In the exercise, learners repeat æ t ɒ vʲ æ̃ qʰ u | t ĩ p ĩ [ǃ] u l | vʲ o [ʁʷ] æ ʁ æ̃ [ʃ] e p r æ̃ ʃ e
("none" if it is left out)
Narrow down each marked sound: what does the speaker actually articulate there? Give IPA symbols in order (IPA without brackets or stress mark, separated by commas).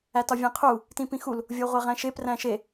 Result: x, ʁʷ, ʃ